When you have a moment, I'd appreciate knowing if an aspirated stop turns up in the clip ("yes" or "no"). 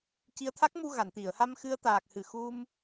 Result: yes